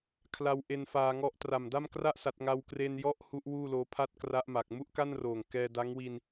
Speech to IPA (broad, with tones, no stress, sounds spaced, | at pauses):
kʰ l a˧ w ʔ e˧ n f aː˧ ŋ ɔ˦˥ ʔ t r a˨˩ m d a˥˩ m k r a˥˩ ʔ s a˦˥ t̚ ŋ a˥˩ w k r e˧ n j ɔ˦˥ ʔ h u˦˥ ʔ w uː˥˩ l oː˦˥ pʰ a˥˩ t̚ k r a˦˥ ʔ m a˨˩ k̚ m u˥˩ ʔ k a˥˩ n r oː˨˩ ŋ k ɛː˧ d a˦˥ ŋ w i˧ n